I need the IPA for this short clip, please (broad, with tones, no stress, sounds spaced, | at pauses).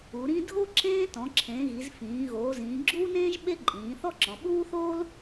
u˩˧ ɾ ĩ˥ dʱ o˥ ǁ ẽː˥ t ɔ̃˩˧ ǁʰ ẽː˩˧ ɣ i˩˧ z f ĩː˩˧ ɣ oː˩˧ z ĩː˩˧ ɡ͡ǁ uː˥ n ẽː˥ ʒ ɓ e˥ ǃʼ ĩː˩˧ θ ɔ˥ ǁ ɔ̃˩˧ ɓ uː˥ θ oː˥ l